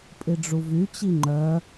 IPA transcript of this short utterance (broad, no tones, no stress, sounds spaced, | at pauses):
pʼ i ɖ͡ʐ u v y t͡ɕ i ŋ͡ǃ œ